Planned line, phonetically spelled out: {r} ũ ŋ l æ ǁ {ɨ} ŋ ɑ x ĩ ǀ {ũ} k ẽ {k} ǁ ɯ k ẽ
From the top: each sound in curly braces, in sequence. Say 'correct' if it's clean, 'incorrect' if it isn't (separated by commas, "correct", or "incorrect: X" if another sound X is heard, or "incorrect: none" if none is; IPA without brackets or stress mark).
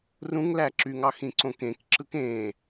correct, incorrect: y, incorrect: õ, correct